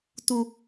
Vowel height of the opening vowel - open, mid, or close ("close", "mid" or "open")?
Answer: close